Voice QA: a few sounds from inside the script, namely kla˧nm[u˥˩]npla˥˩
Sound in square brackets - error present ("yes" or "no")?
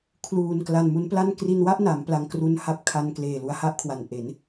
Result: yes